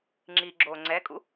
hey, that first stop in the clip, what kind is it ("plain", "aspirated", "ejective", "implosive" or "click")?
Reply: click